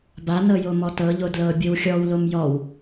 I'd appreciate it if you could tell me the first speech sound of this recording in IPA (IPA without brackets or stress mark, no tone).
b